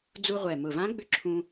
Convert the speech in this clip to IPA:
d͡zu˧ ʁʷɛ˨˩mʊ˨˩vã˧˥ɡ͡bʏ˧˥ ǁʰũ˧

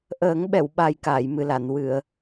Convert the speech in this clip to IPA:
ʔəː˨˩˦ŋ ɓɛ˨˩˨wɓa˨˩j kaː˨˩˨jmɨ˨˩la˨˩˨n wɨ˨˩˨ə̯

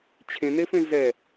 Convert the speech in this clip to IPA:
t͡ɕʰẽnefẽ zɛ

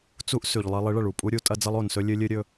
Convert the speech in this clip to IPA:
t͡su˦ʔ sʉ˨ʎlˠe˦ lˠi˨˦ɭɐ˨ɭu˨ pʼu˦ɾʲu˨˦ tʼɐ˦d͡zɐ˦lˠo˨nsɵ˦ lʲɨ˦lʲɨ˦ɾʲɵ˦

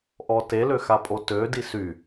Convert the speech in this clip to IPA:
ʔɔte løxapʼotø disy

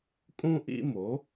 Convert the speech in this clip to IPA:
kʼũ˥ʔḭ˥mo˩˥

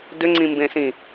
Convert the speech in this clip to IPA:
dʏŋ͡ǀĩmbẽsĩ

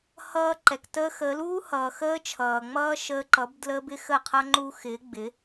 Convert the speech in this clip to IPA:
hʌː˧ǃɛ˨k təː˧xəː˨˦luː˦ hʌː˨xəː˦t͡ʃʰʌː˨ŋ͡mʌː˦ ʃəː˧ǃʌ˨˦b dlə˦ bɪ˦xə˦˨qʰʌ˦ ŋ͡ǃu˧ xɪː˨˦ ɡ͡bɪ˨˦

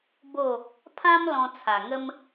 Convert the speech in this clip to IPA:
bo˥˧ | pʰã˦m lɔ̃˧t͡sʰa˨˩ŋə˦m

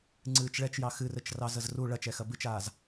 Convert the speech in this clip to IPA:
ŋ͡ǀɨːt͡ʃɭɛt͡ʃjɑ xɨrɘt͡ʃrɑ zəzru ɭɐt͡ʃɛxɐ bɨt͡ʃaːz

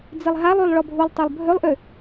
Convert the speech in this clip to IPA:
d͡zilˠɦalˠylˠ ɭɔbʱulˠtˤølˠ bʱølˠʔø

